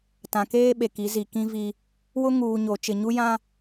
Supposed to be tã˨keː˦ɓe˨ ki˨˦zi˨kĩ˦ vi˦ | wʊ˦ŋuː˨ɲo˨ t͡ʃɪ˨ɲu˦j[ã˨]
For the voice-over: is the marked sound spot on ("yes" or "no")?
no